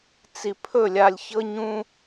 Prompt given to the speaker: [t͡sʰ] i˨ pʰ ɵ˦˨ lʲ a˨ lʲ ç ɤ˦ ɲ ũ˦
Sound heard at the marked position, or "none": t͡s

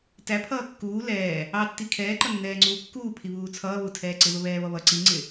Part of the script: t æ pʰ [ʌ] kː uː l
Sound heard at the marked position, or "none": ʌː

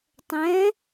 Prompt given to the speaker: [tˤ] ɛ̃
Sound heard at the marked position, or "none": tˤ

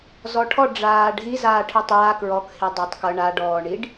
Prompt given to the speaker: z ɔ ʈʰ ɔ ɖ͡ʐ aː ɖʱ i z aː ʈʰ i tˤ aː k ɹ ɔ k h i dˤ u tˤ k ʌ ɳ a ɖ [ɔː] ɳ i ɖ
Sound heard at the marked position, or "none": ɔː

